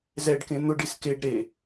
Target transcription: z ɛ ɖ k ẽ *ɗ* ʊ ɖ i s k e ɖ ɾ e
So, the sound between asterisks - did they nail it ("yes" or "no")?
no